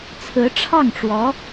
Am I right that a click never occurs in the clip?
yes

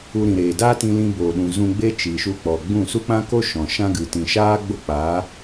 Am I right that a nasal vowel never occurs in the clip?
no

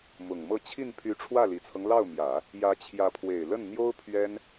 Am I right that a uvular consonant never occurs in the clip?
yes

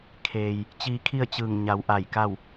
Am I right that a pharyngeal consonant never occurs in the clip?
yes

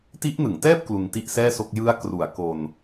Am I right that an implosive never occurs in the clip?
yes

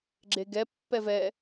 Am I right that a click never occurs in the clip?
no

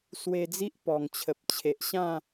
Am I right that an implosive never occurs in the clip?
yes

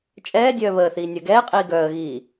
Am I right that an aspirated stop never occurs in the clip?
yes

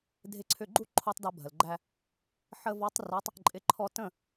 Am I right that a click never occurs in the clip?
no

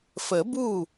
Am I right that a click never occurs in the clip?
yes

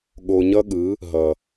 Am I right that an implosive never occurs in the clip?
no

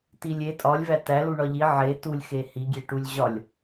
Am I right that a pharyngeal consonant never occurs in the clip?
no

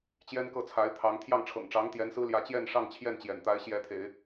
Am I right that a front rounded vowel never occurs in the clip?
yes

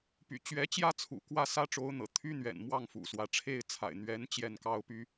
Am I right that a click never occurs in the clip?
yes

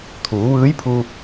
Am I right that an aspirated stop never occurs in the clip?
no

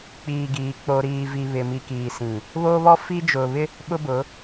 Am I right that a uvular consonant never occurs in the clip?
yes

